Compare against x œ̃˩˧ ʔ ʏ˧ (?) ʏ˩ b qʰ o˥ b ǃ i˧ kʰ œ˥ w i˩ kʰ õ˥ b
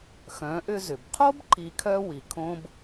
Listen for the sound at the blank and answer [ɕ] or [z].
z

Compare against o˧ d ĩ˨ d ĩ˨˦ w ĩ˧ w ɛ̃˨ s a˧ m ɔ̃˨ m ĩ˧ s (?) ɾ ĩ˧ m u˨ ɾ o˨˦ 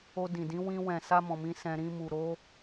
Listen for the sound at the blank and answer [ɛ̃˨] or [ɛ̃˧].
ɛ̃˧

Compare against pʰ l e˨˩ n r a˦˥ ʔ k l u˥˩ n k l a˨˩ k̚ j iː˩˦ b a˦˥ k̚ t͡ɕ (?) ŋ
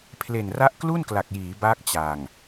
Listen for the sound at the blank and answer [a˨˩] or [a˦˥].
a˨˩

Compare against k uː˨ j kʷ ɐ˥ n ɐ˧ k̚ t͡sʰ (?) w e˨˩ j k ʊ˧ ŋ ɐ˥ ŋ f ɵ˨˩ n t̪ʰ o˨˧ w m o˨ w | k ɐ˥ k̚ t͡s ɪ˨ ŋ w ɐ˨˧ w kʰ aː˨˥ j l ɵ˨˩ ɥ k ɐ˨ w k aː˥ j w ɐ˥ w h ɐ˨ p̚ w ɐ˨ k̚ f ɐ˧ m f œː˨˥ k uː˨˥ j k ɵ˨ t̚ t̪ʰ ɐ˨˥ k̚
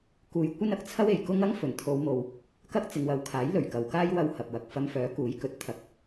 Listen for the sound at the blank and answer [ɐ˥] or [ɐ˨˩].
ɐ˥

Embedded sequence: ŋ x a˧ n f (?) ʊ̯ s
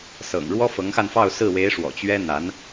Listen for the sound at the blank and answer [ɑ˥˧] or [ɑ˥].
ɑ˥˧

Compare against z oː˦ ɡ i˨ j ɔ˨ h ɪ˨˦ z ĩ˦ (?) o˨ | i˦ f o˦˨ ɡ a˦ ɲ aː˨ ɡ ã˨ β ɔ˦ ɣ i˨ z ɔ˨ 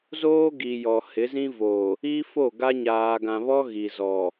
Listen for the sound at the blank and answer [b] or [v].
v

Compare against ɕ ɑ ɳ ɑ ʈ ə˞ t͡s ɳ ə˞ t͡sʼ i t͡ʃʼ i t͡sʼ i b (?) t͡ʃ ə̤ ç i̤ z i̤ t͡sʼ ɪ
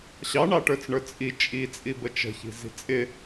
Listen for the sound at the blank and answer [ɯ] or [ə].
ə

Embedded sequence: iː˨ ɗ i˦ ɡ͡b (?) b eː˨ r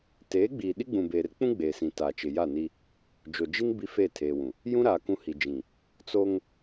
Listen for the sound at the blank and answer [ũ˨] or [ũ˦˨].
ũ˨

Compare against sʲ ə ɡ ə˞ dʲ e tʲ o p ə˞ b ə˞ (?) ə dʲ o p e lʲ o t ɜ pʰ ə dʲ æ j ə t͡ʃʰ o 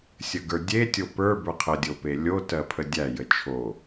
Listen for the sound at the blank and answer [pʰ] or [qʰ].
qʰ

